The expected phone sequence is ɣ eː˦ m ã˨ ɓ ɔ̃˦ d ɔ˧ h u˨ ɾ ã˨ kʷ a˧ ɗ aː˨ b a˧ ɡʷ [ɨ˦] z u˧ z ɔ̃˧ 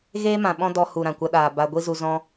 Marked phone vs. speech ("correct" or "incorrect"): incorrect